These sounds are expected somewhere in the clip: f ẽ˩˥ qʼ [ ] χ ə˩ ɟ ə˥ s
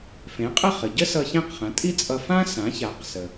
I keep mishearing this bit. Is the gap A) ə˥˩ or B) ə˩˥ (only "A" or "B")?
A